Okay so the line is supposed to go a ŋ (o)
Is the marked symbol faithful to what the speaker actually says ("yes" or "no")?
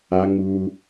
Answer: no